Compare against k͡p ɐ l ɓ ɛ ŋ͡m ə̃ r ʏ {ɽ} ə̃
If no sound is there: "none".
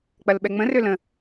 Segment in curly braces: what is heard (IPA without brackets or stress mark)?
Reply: l